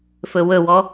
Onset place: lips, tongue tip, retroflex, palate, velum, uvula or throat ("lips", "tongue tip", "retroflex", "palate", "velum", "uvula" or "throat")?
lips